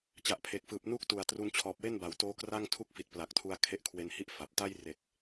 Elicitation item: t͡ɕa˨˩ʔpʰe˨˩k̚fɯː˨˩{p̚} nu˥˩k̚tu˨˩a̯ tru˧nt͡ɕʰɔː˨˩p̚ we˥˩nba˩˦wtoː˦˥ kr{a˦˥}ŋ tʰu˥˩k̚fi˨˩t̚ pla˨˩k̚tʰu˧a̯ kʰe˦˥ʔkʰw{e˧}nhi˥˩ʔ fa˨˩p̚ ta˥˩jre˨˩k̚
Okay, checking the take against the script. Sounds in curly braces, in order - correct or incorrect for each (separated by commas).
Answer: correct, incorrect, correct